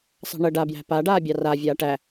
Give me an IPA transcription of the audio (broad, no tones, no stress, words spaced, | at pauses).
sˤɑ̤ɳə ɖabjæ̤ paɖaː bʲɑra vʲaːʈæ